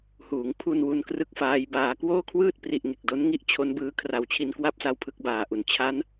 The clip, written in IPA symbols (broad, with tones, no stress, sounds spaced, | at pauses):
h uː˩˦ ŋ pʰ u˧ n w u˦˥ n k r ɯ˥˩ k̚ f aː˦˥ j b aː˧ k w oː˥˩ kʰ w ɯː˥˩ t̚ p r i˨˩ ʔ ŋ e˨˩ k̚ d o˦˥ n ŋ i˥˩ ʔ t͡ɕʰ o˦˥ n b ɯː˦˥ kʰ r a˨˩ w t͡ɕʰ i˧ n k w a˥˩ p̚ s a˦˥ w pʰ ɯ˦˥ k̚ b aː˨˩ ʔ u˨˩ n t͡ɕʰ a˦˥ n